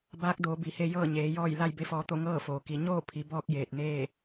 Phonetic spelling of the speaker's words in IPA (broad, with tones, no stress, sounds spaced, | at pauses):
b aː˧˥ k̚ d oː˩˧ b i˩˧ h e˧ j ɤː˥˨ ɲ eː˩˧ j ɔː˥˨ j l a˥˨ j b e˧˥ f ɔː˧ t̪ o˥˨ ŋ ɤː˥˨ f oː˩ k i˩˧ ɲ oː˥˨ pʰ i˩˧ b ɔː˧ k̚ j eː˧˩ t̚ n eː˥˨